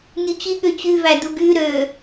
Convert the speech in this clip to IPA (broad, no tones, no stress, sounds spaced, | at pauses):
nʲ u t͡ɕ i ɠ ø t͡ɕ y v æ d u ɡ y ɾ ø